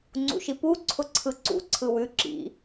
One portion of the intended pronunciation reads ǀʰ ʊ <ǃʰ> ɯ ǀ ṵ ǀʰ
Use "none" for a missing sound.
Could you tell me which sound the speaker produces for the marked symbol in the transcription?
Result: ǀʰ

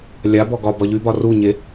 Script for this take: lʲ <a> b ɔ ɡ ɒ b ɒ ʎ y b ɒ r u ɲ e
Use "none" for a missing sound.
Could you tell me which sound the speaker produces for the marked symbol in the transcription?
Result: a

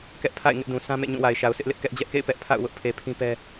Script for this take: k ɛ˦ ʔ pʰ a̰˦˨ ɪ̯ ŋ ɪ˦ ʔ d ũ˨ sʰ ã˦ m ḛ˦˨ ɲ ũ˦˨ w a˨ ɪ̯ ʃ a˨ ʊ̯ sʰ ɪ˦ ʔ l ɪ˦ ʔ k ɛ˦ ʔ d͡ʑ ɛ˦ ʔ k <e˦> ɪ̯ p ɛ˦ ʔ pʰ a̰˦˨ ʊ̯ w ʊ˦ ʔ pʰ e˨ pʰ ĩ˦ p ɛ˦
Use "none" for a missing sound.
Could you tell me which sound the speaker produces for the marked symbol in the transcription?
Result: ḛ˦˨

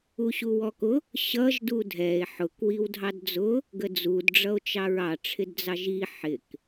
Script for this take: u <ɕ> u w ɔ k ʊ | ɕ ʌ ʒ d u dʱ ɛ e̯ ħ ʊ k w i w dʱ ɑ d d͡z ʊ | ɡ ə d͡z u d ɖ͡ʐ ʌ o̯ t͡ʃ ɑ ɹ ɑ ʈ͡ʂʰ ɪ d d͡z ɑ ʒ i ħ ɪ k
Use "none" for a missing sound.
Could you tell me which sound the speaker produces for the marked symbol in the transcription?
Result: ɕ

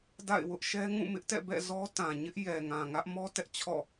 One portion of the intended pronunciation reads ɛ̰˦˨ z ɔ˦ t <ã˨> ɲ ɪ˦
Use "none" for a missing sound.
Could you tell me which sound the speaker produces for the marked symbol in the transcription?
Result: ã˨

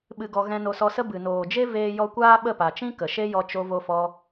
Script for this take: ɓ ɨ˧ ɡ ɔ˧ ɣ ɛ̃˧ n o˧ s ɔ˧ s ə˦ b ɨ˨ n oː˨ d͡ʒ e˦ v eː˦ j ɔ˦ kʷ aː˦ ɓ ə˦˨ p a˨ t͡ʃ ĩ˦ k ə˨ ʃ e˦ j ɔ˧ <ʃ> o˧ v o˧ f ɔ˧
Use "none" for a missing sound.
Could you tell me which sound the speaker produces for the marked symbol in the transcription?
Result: t͡ʃ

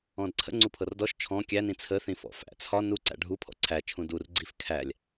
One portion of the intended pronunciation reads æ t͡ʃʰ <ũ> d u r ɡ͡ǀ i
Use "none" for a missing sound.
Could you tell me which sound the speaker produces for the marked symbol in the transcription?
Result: ũ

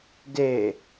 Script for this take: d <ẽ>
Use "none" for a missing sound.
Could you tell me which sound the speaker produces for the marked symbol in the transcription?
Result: e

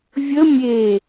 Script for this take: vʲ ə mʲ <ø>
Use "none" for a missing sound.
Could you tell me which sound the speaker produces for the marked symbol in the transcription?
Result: e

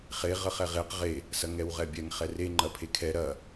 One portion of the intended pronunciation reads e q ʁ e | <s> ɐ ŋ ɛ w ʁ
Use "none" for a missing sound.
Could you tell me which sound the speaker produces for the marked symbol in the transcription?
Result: s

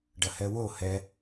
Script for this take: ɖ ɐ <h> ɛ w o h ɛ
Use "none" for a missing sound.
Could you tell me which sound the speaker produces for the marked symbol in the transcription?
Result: h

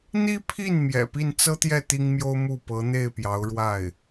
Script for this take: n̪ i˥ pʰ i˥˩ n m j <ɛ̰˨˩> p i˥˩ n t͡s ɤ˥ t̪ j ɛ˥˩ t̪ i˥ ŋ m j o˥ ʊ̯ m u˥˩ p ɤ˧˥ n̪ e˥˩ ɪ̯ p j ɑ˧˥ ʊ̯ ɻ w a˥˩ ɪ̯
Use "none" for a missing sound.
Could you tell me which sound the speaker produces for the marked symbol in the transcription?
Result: ɛ̰˨˩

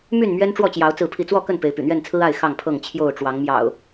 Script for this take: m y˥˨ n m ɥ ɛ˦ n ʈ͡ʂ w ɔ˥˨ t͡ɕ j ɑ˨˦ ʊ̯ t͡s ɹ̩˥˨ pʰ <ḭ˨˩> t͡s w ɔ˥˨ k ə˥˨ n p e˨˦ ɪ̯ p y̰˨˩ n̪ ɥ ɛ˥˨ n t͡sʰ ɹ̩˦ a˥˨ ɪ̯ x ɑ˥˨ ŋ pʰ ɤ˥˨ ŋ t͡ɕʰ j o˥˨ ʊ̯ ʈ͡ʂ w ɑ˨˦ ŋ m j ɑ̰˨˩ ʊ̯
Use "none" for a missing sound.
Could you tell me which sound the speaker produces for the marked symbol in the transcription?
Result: i˥˨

